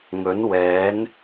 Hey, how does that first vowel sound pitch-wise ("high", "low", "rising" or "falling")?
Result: rising